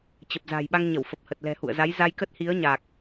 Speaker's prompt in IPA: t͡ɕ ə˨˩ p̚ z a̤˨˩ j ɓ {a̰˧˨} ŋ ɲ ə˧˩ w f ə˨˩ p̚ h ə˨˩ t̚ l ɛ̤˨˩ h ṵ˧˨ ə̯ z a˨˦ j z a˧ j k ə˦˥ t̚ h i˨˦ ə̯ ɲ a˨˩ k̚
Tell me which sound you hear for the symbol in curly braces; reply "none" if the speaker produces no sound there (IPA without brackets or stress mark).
a˧